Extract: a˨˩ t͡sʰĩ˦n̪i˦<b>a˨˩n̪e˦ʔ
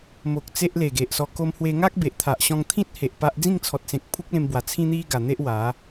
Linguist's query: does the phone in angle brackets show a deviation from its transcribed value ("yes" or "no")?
yes